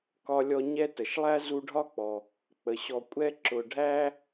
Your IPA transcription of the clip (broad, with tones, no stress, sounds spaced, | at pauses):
k ɒ˦ lʲ ɔ˦ ɲ ɛ˥ t ə˨ ʃ lˠ æ˥ z u˦ ɖʱ ɒ˥ k͡p ɔ˨ | k͡p ə˩ ɕ ɔ˨ kʷʼ ɛ˦ ǁ ʊ˨ ɖʱ æ˥